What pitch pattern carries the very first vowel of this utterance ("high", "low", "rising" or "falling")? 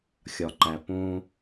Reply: low